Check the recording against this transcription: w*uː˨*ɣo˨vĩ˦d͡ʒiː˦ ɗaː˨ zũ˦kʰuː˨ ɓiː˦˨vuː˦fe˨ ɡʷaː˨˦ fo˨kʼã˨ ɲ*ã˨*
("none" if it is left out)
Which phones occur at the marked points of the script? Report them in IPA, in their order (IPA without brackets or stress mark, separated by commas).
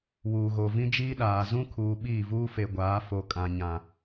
uː˨, ã˨